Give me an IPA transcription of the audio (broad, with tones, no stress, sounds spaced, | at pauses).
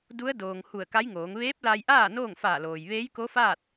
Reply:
d u˧˥ ə̯ d oː˩ ŋ h u˧˩ ə̯ k a˧˥ j ŋ oː˩˧ ŋ ʋ eː˧˥ p̚ l a˧ j ʔ aː˥˨ n oː˥˨ ŋ f aː˧˩ l oː˩ j ʋ eː˧˥ j k o˧˥ f aː˥˨ t̚